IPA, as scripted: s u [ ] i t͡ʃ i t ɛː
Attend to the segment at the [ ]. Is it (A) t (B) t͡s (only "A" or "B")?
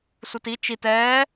A